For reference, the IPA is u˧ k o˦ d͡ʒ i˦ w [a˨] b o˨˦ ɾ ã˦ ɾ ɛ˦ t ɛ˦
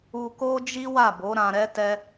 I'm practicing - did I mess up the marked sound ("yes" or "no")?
yes